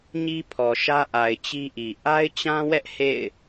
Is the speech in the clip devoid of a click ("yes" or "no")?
yes